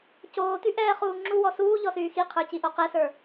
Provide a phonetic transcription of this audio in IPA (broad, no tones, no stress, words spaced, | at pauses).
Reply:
coːtyʔɛːχuː ŋ͡ǁuwɔ suːʎɔsyː xiqʰə˞ciʔo qɛsə˞